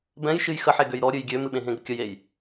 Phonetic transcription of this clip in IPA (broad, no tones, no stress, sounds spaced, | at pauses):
b ɛ̃ j ʃ ɨ j x ə ħ e ɡ ø j ɾ ɔ ɾʲ ɨ j ɡʲ ø m ɨ ɓ ẽ ɦ ẽ ɡ ə kʲ ə j e j